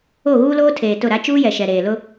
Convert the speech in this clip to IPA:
o˦˨ ɣ uː˦ l oː˦ tʰ eː˨ t ʊ˦˨ ɾ a˦ t͡ʃ uː˦ j ɛ˨ ʃ ɛ˨ ɾ eː˨ l ʊ˦

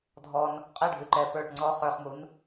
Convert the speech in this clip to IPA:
dʱ ɔ n | qʼ ɛ ɖʱ ʉ ǃ ɛ p ə˞ ʈ ŋ͡ǀ ɔ χ ə˞ χ m u n

